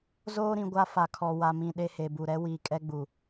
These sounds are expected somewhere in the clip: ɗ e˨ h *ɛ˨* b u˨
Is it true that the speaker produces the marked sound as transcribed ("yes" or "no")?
no